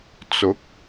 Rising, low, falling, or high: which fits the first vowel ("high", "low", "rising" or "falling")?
rising